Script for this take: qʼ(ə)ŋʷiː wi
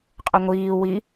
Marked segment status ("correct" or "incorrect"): correct